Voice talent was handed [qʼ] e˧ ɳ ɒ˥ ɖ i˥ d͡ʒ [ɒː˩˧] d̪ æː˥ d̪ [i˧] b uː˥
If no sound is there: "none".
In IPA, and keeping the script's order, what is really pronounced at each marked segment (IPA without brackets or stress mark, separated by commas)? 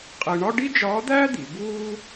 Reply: qʼ, ɒː˧˥, i˩˧